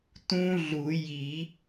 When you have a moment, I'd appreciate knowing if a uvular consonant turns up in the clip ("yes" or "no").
no